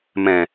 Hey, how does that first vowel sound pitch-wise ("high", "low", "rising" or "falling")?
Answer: low